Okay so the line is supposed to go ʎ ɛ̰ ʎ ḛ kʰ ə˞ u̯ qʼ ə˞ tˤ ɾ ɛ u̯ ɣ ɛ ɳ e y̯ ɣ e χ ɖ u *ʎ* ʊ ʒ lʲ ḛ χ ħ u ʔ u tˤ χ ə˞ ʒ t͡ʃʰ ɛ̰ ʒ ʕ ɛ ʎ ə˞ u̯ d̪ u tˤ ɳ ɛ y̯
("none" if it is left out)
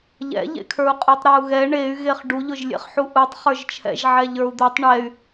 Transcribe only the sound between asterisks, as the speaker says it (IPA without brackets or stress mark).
ʎ